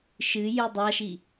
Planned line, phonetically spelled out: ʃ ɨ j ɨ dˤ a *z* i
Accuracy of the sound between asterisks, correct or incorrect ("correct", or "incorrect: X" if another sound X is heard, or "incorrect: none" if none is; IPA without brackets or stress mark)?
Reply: incorrect: ʃ